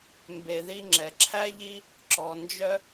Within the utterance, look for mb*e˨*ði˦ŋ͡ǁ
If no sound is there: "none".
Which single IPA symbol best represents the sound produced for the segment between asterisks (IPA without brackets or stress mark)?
e˨